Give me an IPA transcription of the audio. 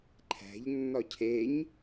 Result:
ǃʰ æ̤ ʎ nː ɒ cʰ e ɲ

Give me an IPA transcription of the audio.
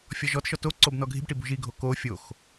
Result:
fʲ ɔ ʒ ɔ t ʃ ɔ t o ǀ o b n ɔ ɡʱ i̤ b ʈ i b ṳ ʒ i ɡʱ o k o fʲ o x

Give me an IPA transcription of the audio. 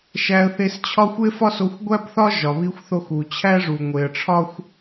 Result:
ʃ æ˧ ə̯ θ e˧ s t͡ɕʰ ɒ˥ xʷ e˥ f ɒ˥ s o˧ xʷ ɡʷ æ˥ b θ ɒ˥ ʒ ɒ˩ β i˧ xʷ θ o˧ x u˩ t͡ɕʰ æ˥ ʐ u˩ ŋʷ e˩ ə̯ ʈ͡ʂʰ ɒ˥ xʷ

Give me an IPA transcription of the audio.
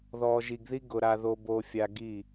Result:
ð ɔː˨ ʒ i˨ ɡ ð i˦ ɡ ʊ˨ ɾ a˨ ð o˨ b o˨ fʲ a˨ ɡ i˦˨

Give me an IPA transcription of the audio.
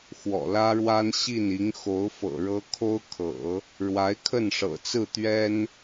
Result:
x w ɔ̰˨˩ l ä˥ ɻ w a˥ n ɕ i˥˩ n i˧˥ ŋ x o˧˥ ʊ̯ f ɤ̰˨˩ ɻ ɤ˥ kʰ o˥ ʊ̯ kʰ ɤ̰˨˩˦ | ɻ w a˧˥ ɪ̯ kʰ ə˥˩ n ʂ ɤ̰˨˩ t͡s ɹ̩˥˩ t̪ ɥ ɛ˥ n

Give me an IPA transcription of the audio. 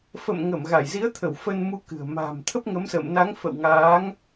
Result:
f ə̰˧˨ m ŋ ə˧˩ m ɣ a˧˩ j z i˨˦ ə̯ t̪ʰ ə˧˩ w f ə˧ n m u˧ k ɨ̤˨˩ ə̯ m a̤ː˨˩ m t̪ʰ ə˦˥ p̚ ŋ ə˨˦ m s ə̰ː˧˨ m n a˨˦ ŋ f ə̰˧˨ w ŋ aː˨˦ ŋ

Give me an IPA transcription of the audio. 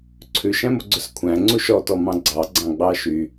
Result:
ǀʰ ʉ ʃ æ̃ m o ɡ͡ǀ ɵ s kʷʰ æ̃ ŋ͡ǀ u ʃ ɔ t ɔ m ɑ̃ ɡ͡ǀ ɑ ɡ͡ǀ ɑ̃ ɡ͡b ɑ ʃ y

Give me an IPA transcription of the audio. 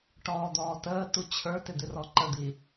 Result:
ʈ ɔː d̪ ɔː t əː t u t͡ɕʰ ə˞ t ɪ d̪ ɪ r ɔ ǃ ə d̪ i

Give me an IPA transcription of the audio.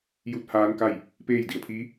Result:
j u˧˥ t̚ h aː˧˥ n k a˥˨ j | p eː˥˨ j d i˩ ə̯ pʰ iː˧˥

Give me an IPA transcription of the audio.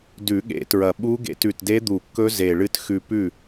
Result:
d ʉ˨˩˦ ɠ ḛ˨˩˦ t ɹ ɐ˨˩ ɓ u˦˥ ɡ ḛ˧ t ʉ˨˩ t d e˦˥ d̪ u˨˩˦ kː ɵ˦˥ z e˨˩ ɭ ɨ˧ t x ʉ˧ p ʉ˥˩

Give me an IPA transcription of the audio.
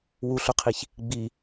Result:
w u ɬ ʊ qʰ i ç | ɡ͡b i

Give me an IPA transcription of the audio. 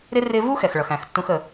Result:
ɾ ɪ˦ r ɪ˧ v u˦ x ɛ˨ x ɭ ʌ˨ x æ̃˨ x tː ũ˧ x ə˨

